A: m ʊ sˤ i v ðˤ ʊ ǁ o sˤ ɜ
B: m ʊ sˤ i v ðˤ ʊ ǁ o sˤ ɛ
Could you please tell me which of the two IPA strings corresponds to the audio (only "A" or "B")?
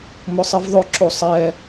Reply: B